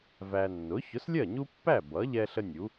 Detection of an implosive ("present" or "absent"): absent